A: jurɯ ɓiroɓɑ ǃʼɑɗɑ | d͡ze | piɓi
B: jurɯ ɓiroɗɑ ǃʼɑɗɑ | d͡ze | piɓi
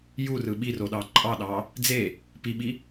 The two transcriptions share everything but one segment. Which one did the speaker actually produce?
B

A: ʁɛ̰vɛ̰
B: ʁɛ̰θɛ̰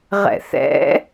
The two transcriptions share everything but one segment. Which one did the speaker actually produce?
B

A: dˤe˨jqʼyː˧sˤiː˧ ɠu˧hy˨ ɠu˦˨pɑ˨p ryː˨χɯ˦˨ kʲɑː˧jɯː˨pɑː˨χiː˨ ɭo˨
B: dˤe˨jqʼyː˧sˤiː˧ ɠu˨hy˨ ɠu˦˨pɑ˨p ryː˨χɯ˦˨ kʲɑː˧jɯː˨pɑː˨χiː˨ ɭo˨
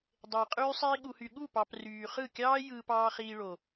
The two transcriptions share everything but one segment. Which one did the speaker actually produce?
B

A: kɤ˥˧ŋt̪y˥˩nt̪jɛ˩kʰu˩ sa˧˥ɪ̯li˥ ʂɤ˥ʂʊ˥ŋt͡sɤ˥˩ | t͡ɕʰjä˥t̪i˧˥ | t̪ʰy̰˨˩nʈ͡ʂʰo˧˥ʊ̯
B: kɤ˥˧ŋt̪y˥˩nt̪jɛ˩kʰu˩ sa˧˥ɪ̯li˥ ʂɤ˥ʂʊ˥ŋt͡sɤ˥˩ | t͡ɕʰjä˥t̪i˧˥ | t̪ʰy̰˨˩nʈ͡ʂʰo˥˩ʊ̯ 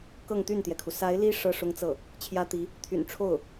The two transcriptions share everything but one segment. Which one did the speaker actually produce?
B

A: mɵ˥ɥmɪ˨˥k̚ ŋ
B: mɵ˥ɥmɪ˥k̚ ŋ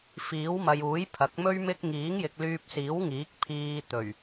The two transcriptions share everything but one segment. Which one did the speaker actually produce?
B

